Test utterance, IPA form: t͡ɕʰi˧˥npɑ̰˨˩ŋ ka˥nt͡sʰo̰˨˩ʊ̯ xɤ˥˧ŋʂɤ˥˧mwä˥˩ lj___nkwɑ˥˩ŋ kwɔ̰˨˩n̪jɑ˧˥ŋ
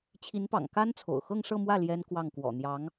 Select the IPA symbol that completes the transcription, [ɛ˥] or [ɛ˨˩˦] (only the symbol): ɛ˥